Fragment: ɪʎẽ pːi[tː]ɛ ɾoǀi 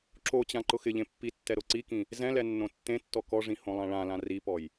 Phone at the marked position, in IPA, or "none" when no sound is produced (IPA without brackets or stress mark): tː